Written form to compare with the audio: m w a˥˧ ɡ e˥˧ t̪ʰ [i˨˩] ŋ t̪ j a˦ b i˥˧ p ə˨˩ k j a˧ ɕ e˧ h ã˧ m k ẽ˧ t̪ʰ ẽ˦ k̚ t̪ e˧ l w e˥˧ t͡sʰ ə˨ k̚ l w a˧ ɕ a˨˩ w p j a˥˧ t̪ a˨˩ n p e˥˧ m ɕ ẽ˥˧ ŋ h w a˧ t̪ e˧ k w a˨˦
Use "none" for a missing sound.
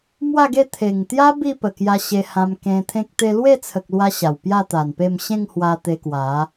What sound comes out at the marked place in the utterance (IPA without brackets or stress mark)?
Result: e˨˩